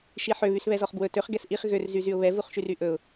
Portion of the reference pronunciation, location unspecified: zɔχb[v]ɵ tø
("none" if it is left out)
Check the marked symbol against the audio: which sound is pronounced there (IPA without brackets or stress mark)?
w